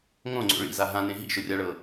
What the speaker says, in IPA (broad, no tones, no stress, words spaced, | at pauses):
ŋõŋ͡ǀo̰ ɭḭza ɦãnẽ ɦḭʃʊrʲaɭɤ